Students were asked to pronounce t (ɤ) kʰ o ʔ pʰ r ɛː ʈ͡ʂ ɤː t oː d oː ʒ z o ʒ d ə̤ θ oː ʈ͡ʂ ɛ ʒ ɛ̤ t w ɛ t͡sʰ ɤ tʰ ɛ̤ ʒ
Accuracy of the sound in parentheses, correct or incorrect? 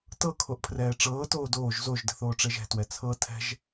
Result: correct